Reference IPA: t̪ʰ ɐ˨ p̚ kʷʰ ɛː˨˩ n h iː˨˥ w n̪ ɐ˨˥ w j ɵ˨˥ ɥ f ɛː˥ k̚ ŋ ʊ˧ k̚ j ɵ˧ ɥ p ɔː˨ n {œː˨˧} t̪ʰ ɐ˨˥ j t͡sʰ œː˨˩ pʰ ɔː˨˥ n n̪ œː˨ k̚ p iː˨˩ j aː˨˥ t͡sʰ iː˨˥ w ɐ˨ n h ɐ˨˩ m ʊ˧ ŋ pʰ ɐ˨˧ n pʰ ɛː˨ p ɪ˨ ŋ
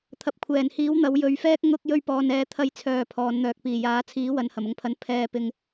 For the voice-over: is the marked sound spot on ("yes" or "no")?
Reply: no